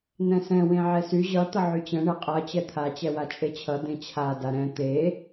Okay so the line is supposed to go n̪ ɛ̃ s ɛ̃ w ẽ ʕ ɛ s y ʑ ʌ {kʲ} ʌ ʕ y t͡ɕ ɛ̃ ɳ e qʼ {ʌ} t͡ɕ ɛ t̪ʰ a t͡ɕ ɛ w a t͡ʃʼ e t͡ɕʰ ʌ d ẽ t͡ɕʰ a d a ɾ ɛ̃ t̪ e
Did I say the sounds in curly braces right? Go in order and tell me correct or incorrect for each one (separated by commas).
incorrect, correct